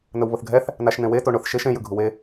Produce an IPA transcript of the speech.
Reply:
n̪ ə w β ʊ θ ɡʱ ɛ θ | n a ʃ n̪ ẽ w e t o ɳ ʊ θ ʃ e ʃ ẽ j ɯ ɡʱ u w e

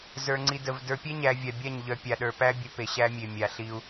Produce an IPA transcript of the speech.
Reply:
z ə˞˨ ŋ͡ǀ i˨ d ə˨ v d ə˞˨ pʲ ɛ˦ ɲ æ˨ vʲ a˨ bʲ a˦˨ ɲ ʎ œ˨ pʲ a˨ ɗ ə˞˨ p æ˦ bʲ ə˨˦ p e˨ ɕ æ˦ mʲ e˨ mʲ a˨ ɬ i˦ u̯

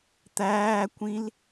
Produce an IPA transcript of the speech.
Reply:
t̪ æː kʷ ĩ l

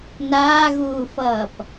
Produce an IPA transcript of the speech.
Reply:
n aː ɣ uː f ʌː p

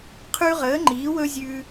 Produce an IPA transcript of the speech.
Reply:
qʰ ʉ˦ ʁ əː˨˥ ŋ͡ǃ iː˨˥ w ɵ˦ zʲ ʉ˦

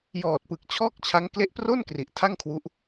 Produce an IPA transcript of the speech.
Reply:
j ɔː˨˩ t̚ p ɯ˨˩ k̚ t͡ɕʰ ɔː˥˩ k̚ t͡ɕʰ a˦˥ ŋ k l e˦˥ ʔ p r o˥˩ n k r i˨˩ ʔ tʰ a˥˩ ŋ kʰ w u˦˥ ʔ

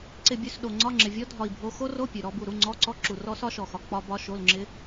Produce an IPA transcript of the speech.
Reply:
ǀ ɪ˦˨ bʲ ʉ˧˥˧ s ɗ o˨ ŋ͡ǀ ɒ˧˥˧ ŋ͡ǁ ɪ˨ vʲ ɔ˦˥ dʱ ɒ˦˨ i̯ bʱ o˦˥ x o˦˥ r o˧˥˧ pʲ ʉ˨ ɾ ɔ˦˥ b u˦˨ ɾ u˧˥˧ ŋ͡ǀ ɔ˧˥˧ ǀ ɔ˦˥ ǁ u˨ r ɔ˦˥ s ɒ˦˥ ʃ ɔ˨ x ɒ˨ k͡p ɒ˦˥ b ɒ˦˥ ʃ o˧˥˧ l ŋ͡ǁ ɪ˦˥

